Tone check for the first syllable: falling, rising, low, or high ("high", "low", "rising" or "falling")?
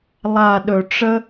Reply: low